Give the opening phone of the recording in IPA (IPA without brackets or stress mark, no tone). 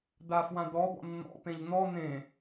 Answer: d̪